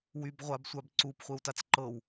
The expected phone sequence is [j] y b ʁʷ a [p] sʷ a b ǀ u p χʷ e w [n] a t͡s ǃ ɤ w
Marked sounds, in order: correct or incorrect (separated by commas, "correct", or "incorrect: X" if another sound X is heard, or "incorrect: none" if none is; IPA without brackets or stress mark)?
incorrect: w, incorrect: b, incorrect: t